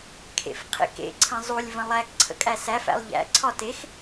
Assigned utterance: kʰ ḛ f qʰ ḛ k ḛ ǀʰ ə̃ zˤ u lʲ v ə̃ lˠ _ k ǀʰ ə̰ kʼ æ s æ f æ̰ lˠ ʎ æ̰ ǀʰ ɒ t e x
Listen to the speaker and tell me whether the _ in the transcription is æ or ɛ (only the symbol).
æ